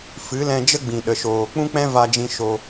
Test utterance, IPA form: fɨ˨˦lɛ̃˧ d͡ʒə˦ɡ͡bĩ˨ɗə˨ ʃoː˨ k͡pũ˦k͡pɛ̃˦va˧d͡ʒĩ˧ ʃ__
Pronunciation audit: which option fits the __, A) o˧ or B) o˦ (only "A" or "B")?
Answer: A